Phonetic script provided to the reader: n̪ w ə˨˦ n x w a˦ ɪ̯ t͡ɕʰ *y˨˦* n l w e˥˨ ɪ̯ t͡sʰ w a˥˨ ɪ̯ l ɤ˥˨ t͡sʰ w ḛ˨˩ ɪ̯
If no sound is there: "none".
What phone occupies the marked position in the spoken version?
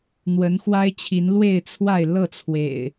i˨˦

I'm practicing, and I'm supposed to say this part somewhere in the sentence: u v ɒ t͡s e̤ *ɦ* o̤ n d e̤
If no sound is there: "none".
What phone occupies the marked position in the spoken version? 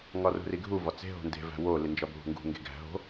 ɦ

